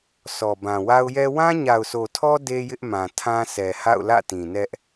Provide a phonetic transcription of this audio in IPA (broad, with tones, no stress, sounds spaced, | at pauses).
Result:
s ɔ˨ b ã˨ w a˦ ʊ̯ j ɛ˦ w ã˦ ɲ a˨ ʊ̯ sʰ o˨ tʰ ɔ˦ d e˦ j ɪ˦ ʔ m ã˨ tʰ ã˦ s ɛ˨ h a̰˦˨ ʊ̯ l ä̰˦˨ t ĩ˨ n ɛ˦ ʔ